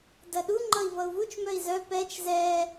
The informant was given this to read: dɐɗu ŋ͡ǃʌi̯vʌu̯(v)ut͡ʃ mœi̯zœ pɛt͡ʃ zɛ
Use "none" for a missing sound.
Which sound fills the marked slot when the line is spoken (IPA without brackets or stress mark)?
v